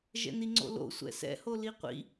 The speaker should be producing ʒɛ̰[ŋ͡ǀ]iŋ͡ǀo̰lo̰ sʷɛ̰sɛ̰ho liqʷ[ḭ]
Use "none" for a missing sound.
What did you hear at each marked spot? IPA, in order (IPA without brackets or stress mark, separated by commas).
n, ḭ